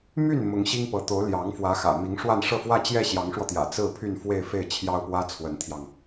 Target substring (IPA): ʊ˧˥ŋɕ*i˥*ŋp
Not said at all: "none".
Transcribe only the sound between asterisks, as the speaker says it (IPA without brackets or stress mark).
i˥